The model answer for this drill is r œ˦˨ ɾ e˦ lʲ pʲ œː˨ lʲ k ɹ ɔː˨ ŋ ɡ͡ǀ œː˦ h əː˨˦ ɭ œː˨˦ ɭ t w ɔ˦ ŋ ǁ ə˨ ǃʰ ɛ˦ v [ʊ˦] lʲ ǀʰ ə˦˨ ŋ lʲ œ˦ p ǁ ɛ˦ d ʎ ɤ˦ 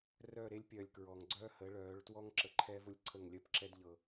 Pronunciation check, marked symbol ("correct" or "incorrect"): correct